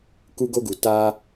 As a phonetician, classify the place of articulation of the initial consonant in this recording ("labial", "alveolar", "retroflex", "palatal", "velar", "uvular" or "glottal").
velar